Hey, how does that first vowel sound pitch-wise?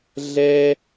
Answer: high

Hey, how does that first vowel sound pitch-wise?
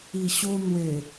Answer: low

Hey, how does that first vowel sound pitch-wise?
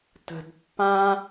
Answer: low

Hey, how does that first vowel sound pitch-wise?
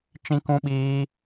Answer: high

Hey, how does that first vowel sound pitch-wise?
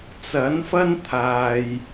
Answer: rising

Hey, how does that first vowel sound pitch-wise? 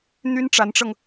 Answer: high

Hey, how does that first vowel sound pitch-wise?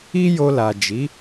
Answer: high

